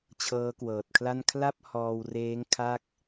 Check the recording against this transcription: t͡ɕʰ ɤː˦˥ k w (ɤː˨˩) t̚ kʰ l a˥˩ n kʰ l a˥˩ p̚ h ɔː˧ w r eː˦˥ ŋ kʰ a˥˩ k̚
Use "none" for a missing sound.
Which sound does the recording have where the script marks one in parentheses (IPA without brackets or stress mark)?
ɤː˨˩